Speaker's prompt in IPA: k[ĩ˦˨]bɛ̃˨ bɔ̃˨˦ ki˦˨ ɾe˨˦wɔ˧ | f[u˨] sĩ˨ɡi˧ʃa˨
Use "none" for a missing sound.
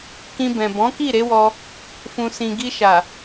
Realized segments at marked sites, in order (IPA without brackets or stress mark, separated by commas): ĩ˧, ũ˨